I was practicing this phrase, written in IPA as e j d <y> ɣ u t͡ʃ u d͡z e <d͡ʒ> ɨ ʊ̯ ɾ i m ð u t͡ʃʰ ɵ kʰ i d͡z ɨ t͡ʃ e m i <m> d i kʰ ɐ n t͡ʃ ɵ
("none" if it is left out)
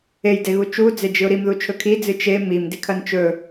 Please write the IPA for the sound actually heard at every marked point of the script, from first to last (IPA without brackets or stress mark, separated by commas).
e, d͡ʒ, m